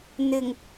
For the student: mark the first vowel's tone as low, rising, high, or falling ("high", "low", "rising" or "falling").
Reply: low